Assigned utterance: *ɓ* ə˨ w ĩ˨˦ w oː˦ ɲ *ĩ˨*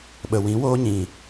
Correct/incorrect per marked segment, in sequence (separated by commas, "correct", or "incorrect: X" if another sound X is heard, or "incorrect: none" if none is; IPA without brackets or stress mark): correct, correct